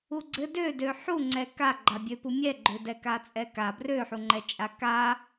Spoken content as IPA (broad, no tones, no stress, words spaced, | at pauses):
uɡ͡ǀɘ dødø ħuŋ͡ǀɛ kaɡ͡ǃabʲøpu mʲɛɡ͡ǃødɛ kat͡sʼɛka brøħuŋ͡ǃɛ t͡ʃʼaka